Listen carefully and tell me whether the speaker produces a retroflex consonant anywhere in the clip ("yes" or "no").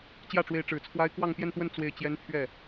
yes